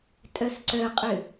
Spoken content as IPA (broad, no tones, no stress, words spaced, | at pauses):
tʼœsǀœqʼʏ